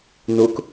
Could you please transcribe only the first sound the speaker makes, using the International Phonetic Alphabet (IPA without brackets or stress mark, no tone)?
n